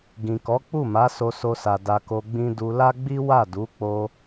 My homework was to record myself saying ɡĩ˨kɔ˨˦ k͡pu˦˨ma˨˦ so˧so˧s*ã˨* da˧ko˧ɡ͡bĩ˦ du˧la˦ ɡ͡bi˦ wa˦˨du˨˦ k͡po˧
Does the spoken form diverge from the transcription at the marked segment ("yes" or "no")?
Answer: yes